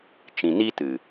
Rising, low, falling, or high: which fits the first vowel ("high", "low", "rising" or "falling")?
low